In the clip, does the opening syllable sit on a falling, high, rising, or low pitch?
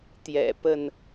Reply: low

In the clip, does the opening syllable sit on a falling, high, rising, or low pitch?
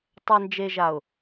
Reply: low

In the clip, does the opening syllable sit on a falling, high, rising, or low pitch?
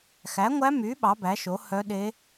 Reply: rising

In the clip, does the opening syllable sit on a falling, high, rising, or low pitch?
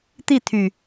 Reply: falling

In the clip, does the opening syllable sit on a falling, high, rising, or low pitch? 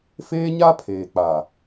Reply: high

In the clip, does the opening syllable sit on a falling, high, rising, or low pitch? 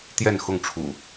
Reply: falling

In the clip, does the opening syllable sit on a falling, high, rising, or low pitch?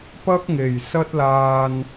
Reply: high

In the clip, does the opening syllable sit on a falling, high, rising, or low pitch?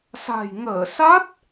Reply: low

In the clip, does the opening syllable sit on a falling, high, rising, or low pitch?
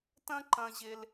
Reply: high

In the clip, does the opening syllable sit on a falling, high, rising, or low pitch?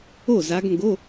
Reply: falling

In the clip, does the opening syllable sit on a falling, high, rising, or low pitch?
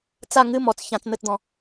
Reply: falling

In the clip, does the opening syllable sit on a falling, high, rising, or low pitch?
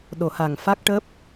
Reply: low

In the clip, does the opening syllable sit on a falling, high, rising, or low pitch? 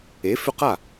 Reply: rising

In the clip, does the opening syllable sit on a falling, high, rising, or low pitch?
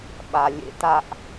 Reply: low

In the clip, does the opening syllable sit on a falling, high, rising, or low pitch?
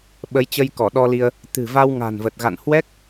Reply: rising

